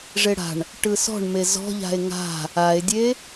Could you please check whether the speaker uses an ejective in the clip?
no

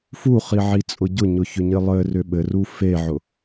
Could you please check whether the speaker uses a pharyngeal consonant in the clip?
yes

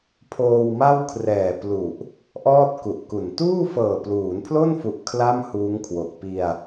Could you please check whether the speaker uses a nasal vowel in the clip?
no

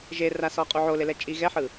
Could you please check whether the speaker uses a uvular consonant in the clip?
yes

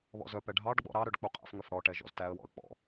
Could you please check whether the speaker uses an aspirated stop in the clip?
no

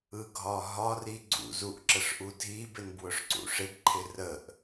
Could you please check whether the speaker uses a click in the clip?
yes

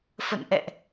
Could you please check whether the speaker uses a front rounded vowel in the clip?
no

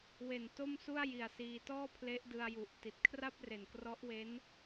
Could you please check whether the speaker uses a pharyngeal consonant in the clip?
no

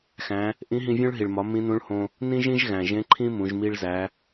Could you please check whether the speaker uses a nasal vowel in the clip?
yes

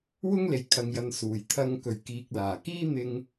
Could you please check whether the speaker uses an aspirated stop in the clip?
yes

